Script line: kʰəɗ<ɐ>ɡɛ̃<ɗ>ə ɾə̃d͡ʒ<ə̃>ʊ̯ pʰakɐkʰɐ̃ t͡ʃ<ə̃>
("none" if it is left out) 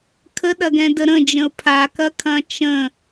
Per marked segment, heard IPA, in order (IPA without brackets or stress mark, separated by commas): ɐ, d, ə̃, ə̃